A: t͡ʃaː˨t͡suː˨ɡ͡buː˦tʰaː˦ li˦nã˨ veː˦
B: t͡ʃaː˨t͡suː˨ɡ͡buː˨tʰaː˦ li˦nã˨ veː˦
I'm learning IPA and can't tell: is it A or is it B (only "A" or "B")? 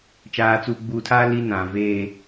B